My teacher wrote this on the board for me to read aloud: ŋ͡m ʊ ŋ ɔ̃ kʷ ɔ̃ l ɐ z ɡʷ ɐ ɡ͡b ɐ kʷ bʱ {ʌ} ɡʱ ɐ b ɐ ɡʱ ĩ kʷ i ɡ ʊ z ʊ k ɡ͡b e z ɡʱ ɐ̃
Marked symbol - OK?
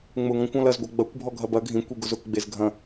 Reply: no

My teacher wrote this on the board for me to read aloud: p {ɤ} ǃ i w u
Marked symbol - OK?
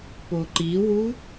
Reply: no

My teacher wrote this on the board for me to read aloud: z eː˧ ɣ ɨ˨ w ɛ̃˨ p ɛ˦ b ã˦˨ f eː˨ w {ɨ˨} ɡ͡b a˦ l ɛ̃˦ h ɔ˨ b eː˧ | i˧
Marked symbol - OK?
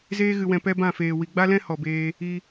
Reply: no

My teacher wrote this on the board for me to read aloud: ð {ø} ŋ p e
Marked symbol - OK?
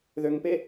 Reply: yes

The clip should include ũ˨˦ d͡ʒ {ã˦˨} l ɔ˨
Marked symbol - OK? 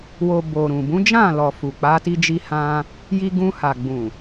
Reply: yes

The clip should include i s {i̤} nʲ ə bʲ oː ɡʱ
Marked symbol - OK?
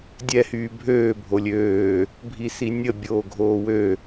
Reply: no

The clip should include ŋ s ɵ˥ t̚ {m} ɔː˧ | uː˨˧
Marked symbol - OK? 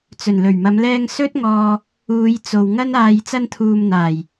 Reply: no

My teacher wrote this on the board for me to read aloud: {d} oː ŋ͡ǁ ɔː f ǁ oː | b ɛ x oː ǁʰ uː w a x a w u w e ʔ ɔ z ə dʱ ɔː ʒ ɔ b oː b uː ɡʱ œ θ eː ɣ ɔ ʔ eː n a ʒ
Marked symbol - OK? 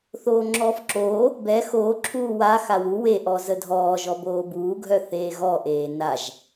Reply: no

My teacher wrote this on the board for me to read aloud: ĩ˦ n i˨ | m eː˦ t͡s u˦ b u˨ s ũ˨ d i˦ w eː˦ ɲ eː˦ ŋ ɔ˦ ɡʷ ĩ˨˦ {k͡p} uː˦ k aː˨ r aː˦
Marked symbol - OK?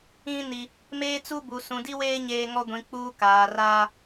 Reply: yes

